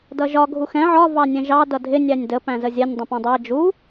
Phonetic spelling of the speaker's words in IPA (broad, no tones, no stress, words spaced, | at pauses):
dʌʒɒ ɡʱuxɛ̃ ʕɒ vɑnʲɛ̃ʒɑ dʌdʱɪ nʲænʲdə pæ̃zəzʲɛnʲ dˤə̃pæ̃dˤæ d͡ʒu